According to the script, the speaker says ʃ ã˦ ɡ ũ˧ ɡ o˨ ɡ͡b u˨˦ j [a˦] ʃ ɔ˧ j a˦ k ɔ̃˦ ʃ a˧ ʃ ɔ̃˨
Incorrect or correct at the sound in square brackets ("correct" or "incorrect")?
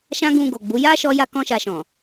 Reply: correct